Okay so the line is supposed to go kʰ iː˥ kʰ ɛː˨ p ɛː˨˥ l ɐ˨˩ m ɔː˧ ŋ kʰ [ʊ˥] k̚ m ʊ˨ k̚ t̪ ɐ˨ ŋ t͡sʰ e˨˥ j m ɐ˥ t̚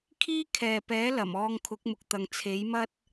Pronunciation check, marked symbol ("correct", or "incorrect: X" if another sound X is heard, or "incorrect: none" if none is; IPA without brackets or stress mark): incorrect: ʊ˨˥